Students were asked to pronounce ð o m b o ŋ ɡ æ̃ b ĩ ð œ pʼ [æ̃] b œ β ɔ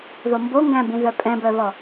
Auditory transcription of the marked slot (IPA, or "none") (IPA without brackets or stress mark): ɛ̃